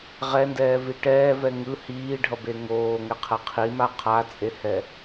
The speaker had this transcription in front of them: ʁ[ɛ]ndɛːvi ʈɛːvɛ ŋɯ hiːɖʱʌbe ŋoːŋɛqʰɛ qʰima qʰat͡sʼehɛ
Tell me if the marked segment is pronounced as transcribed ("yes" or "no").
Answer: yes